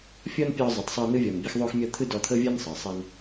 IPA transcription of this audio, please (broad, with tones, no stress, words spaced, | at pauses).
fʲɔ˦npʲɔ˧ zˤɤ˨tˤsˤɯ˧nɯ˦ vʲɔ˨nbʲɤ˦xðˤo˦xmʲɔ˦ t̪ʰɯ˦dɔ˧t̪ʰɤ˦vʲɤ˦n sˤɤ˨sˤɛ˦n